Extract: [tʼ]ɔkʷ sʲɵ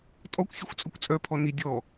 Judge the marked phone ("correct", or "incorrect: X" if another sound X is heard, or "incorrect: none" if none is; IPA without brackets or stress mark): correct